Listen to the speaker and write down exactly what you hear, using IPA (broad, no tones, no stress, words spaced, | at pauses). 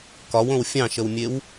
kɒwõw fʲɑ̃ʃəwmʲew